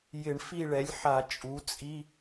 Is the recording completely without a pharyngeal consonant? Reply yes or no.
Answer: no